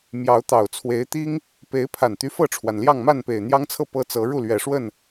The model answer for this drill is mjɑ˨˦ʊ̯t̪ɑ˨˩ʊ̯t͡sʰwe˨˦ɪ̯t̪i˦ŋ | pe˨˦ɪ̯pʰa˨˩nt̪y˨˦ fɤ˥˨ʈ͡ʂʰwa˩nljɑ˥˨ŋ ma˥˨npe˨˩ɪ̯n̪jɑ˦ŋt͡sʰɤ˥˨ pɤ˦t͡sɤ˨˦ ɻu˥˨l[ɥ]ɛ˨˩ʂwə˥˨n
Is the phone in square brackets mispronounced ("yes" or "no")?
no